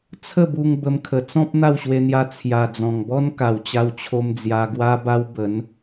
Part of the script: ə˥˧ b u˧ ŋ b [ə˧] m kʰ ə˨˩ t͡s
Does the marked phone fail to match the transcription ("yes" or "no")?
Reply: no